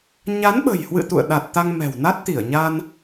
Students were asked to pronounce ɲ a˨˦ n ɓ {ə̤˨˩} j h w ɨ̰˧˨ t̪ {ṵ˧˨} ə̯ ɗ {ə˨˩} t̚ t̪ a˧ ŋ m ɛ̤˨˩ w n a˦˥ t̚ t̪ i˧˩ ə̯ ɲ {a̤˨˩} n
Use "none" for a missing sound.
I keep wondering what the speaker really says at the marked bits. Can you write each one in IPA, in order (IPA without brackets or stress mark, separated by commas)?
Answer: ə̤˨˩, ṵ˧˨, a˨˩, a˧